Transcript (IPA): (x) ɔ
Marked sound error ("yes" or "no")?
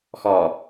no